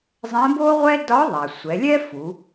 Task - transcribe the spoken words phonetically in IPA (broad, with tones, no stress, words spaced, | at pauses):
zˤɛ̃˧˥bo˥ʁʷɛ˥ dɒ˧˥ ðˤa˩sʷɛ˩˧lʲɛ˥fu˩˧